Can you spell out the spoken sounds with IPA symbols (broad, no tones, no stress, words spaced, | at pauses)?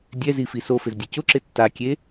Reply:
dʲɛzifi sofɪzdʲʊ cʊǁɪ tːakʲe